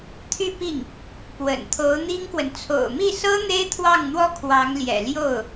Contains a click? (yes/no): no